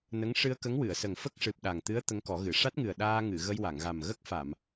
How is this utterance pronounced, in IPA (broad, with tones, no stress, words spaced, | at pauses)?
nə˧˥ŋ ʂɨ˧ə̯kə˧˥ŋwɨ˨˩˨ə̯sə˨˩ŋ fə˦˥k̚ʂɨ˨˩p̚ɗa˨˩ŋt̪ɨ˧˥ə̯ t̪ə˧˥ŋkɔ˨˩˦ɣɨ˨˩˨ ʂa˦˥t̚ŋɨ˨˩ə̯ ɗaː˧ŋɨ˨˩˨ ɣə˧jwa˨˩˨ŋɣa˨˩m ɣə˦˥k̚fa˨˩˨m